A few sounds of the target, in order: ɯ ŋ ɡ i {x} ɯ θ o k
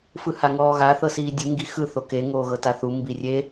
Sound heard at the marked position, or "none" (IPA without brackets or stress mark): x